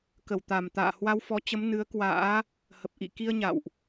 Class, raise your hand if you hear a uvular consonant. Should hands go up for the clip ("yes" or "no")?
no